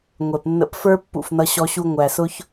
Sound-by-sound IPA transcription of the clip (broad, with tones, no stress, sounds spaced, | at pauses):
ŋʷ ɛ˨ p nː ə̰˧ p f ə˞˦ pː ṵ˨ f n ʌ˧ ɕ ɔ˧ ɕ u˧ ŋʷ æ˨ s ʊ˦ ç